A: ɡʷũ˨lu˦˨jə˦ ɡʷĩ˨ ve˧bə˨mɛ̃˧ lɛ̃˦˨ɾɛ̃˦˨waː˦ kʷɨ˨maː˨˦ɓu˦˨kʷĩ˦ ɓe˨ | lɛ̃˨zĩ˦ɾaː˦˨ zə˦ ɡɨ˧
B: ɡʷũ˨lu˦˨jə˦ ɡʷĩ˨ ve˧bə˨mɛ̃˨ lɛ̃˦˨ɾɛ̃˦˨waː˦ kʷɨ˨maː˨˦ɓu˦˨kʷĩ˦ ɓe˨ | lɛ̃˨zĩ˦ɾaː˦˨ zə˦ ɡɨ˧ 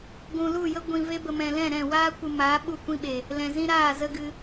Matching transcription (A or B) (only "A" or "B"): B